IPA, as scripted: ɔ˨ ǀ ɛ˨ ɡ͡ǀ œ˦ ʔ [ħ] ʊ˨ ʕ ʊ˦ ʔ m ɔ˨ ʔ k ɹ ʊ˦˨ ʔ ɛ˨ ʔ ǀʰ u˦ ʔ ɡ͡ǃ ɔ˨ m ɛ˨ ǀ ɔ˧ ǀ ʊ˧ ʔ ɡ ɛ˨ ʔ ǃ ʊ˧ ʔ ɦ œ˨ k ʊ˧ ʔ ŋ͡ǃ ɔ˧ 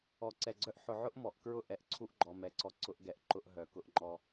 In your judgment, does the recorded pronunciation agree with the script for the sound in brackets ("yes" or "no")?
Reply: yes